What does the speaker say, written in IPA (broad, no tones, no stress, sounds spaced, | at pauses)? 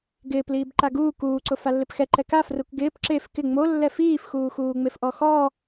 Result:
ɡ ɪː p l iː b ǃ a ɡ uː k uː ǀ ʊ f a lː ɪ p x ɛ ǃ ɛ k a f r u k ɡ ɪː p ǁ e f k ɪ ŋ͡m o lː ɛ f iː f x uː x uː ŋ͡m e f ʔ ɔ x ɔ